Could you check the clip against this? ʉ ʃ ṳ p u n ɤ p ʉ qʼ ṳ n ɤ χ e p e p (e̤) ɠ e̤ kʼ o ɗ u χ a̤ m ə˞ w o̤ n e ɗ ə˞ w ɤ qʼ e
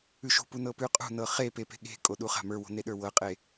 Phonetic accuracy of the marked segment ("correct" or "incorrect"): correct